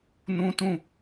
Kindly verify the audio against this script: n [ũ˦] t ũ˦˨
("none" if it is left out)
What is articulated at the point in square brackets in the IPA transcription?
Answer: ũ˦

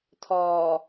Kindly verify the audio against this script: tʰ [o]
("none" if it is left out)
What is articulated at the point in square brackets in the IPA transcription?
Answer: ɔ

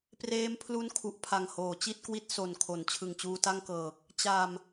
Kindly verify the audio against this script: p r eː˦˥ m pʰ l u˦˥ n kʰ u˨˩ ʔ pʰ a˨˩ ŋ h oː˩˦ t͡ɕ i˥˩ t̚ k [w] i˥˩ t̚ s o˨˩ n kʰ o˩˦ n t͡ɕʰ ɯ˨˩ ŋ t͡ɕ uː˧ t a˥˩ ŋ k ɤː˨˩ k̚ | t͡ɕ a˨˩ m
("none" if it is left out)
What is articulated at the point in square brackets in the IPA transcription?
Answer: w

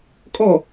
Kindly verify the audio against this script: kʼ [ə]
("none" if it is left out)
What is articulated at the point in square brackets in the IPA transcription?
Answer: ɔ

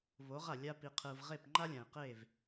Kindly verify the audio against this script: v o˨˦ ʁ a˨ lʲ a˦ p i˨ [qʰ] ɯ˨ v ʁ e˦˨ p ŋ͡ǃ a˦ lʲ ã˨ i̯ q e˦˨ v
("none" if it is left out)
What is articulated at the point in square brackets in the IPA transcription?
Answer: qʰ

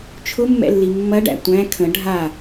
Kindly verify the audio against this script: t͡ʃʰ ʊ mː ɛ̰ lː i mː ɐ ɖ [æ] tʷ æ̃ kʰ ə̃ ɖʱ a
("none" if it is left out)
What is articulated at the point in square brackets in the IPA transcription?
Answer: æ̰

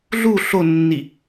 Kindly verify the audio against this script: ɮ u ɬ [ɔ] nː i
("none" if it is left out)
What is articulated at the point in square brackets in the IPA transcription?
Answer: o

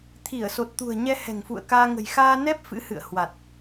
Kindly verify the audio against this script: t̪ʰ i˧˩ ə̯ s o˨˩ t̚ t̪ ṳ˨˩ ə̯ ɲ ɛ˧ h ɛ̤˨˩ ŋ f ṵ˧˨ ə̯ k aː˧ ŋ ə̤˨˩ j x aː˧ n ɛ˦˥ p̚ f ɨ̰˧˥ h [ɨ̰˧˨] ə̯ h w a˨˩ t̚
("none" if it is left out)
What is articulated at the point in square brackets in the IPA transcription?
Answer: ɨ̰˧˨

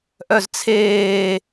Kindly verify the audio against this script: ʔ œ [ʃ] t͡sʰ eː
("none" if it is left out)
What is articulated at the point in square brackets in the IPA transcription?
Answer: z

